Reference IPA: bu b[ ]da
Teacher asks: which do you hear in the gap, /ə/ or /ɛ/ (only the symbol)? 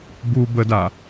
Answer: ə